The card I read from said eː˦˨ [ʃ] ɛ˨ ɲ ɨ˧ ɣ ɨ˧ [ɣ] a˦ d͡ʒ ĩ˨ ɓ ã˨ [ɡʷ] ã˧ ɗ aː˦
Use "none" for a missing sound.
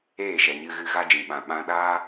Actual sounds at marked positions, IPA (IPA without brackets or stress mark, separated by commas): ʃ, ɣ, ɓ